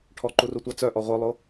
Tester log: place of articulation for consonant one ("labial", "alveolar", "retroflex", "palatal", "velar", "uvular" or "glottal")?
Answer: retroflex